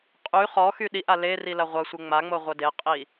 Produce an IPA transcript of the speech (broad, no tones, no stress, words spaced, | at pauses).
qʼy χɔxy ɗiʔa le rilɐʁʷɐsʷe ŋ͡maŋ͡mo ʁʷədeqʼi